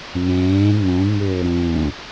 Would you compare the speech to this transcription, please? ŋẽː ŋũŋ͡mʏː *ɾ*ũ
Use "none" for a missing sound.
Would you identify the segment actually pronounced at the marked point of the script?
ɾ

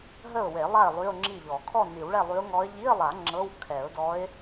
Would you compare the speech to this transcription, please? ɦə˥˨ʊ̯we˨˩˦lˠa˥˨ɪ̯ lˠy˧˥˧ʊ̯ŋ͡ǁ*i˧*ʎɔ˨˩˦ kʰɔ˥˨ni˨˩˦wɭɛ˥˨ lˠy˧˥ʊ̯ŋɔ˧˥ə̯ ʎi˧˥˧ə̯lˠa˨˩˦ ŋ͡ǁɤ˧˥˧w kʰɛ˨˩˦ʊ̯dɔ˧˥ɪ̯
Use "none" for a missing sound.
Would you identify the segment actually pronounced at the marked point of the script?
i˥˨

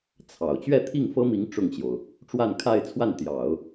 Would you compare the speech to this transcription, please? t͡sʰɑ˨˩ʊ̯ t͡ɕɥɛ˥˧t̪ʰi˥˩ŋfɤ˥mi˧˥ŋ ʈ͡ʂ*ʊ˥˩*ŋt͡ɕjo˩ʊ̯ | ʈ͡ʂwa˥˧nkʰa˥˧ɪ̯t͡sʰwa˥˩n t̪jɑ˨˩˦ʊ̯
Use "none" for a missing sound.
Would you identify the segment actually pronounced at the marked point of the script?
ʊ˥˩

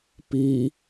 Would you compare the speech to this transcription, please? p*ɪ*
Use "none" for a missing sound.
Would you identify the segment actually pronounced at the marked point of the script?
i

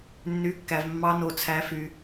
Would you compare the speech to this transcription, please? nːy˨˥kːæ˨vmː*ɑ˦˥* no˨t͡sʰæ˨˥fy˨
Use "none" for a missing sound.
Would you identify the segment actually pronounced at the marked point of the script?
ɑ˦˥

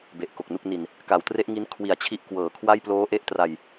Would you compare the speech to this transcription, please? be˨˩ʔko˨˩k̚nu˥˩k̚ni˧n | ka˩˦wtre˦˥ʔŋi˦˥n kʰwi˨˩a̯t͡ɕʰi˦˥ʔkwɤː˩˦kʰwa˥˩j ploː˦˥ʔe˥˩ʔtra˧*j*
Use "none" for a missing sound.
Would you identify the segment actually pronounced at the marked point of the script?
j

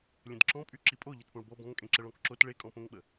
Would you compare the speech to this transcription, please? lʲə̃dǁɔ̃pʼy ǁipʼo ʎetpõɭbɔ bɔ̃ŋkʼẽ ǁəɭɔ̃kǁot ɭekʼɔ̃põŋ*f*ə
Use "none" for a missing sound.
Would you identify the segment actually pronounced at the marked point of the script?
ɓ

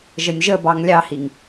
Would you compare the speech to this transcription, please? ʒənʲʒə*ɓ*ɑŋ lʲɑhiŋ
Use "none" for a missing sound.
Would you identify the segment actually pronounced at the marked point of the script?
b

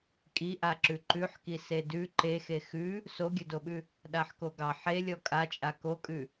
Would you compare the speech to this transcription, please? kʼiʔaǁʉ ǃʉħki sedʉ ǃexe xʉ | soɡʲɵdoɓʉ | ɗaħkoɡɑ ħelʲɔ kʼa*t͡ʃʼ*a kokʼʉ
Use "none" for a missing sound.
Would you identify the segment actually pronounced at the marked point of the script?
t͡ʃʼ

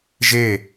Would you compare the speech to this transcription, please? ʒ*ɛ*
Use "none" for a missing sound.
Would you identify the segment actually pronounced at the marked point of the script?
e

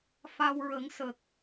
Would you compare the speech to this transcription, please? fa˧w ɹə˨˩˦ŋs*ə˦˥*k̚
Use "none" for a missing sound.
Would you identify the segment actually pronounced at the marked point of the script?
ə˨˩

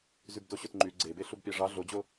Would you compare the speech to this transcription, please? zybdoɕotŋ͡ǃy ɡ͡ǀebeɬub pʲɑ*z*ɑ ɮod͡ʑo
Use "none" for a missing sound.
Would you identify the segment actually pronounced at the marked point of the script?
ʐ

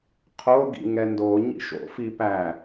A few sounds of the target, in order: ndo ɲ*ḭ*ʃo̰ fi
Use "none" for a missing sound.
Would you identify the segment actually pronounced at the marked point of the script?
ḭ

